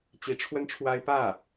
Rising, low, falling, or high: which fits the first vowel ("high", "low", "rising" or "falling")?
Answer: rising